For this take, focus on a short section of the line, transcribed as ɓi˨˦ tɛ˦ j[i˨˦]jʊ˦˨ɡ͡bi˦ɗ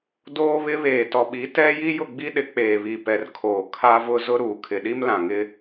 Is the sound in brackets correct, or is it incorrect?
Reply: incorrect